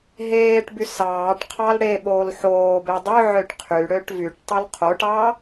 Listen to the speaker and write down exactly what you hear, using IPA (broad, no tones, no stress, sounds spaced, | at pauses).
ɦ eː ʈ b y s ɑː ʈ qʰ ɑ l ɽ e ɓ oː l ħ oː b e dˤ ʉ ʕ ø ʈ qʰ y ɽ ø ʈ v y ʈ tˤ o l qʰ o ʈ ɑː